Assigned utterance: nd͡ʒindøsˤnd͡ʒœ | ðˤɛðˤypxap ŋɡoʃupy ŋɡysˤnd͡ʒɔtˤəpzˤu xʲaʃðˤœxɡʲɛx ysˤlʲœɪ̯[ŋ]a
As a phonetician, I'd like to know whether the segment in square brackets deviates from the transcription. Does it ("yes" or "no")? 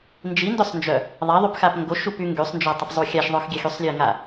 no